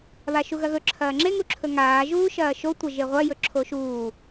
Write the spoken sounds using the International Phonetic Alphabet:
βaʃuɣɐɣɵ ǁʰɐːŋ͡ǁe ŋuǁʰɵŋaː ʒuːʃɐːʃo tʷɐʒeʁʷɐ jɵǁʰoʃuː

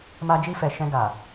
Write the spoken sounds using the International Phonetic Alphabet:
ma˧d͡ʒi˧fɛ˨ ʃɛ̃˧ɡa˨

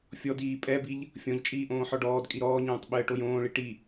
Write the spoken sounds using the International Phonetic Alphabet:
fʲɔdiː pʼɛbiʎ | fʲɔ̃ʎt͡ʃʼiː ʔõːħɔɖɔːdkʼi ɾɔːɲõːtˤ ɓɘːʈojõːɭi ʈi

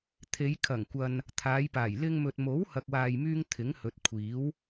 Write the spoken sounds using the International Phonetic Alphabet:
t̪ʰe˨˧jkʰɐ˨˩ŋkʷɐ˨n | t̪ʰaː˨˧jpaː˨˩j lɪ˧ŋmɵ˨t̚ mo˨˥whɐ˨k̚waː˨jmyː˧ŋ t̪ʰɪ˨˥ŋhɵ˨˥t̚kʷʰiː˨˥w

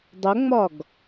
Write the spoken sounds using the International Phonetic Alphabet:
dˤʊŋ͡mɒɡ

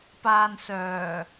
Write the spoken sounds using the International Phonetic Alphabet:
paː˧n sœː˨˩

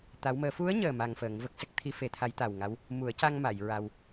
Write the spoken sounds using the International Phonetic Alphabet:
t̪a˧˥wməː˧˥ fu˧˥ə̯ɲəː˨˩ ma˧ŋfəː˨˩˦ŋvə˦˥k̚ sə˦˥k̚t̪ʰi˧˥ fe˨˩˦t̪ʰa˧˥jt̪a˨˩wŋa˧˥w | mu˨˩˦ə̯ca˧ŋma˨˩˨j ɹa˧w

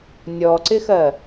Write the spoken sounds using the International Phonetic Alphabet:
nʲɔǀɪxɜ

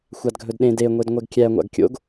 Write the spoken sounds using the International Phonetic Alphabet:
xʷadɡʱɵdɗẽ de ŋʷedŋʷɛɡkʲæ ŋʷa̰ɡkʲo̰ɡ

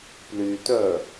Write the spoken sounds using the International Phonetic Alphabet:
plytœ

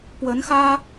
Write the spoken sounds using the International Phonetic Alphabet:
pwə˨˦nxä˦

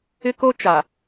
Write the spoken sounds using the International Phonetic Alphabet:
ɪ˦ko˦t͡ʃa˨

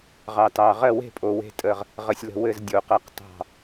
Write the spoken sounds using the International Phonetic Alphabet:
ʁɑ˨tɑ˨ ʁɜ˦˨we̤˦˨pʼo˨ we̤˦˨tʼə˦˨ʁ | ʁə˨sʲlə̤˦˨ wɘ˦˨z dʲo˨qɜ˦˨q tɑ̤˦˨

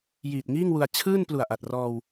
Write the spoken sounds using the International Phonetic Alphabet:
jiː˨˩t̚ŋiː˥˩ŋwu˧a̯ t͡ɕʰɯː˥˩n plu˨˩a̯ʔa˨˩t̚rɔː˧w

